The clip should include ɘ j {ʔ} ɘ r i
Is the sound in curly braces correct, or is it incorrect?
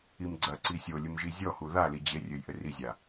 correct